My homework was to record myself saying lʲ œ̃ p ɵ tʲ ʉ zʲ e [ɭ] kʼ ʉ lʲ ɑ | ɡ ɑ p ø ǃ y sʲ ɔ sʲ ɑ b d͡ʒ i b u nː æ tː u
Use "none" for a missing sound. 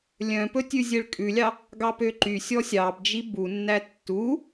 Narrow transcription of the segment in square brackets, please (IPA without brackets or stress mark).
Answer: ɭ